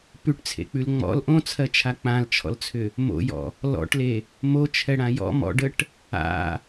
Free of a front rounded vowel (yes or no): no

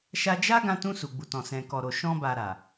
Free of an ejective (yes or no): yes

